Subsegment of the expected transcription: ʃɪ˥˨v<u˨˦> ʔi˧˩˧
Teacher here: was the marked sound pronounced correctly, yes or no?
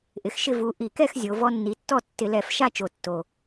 yes